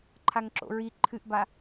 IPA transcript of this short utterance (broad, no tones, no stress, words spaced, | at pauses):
ǃʰaŋǁo̰ɹi ǃʰɨʔba